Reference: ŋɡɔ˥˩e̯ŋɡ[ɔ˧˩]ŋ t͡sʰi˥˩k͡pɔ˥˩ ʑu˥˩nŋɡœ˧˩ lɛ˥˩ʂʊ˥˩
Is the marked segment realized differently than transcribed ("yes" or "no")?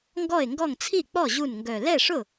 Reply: yes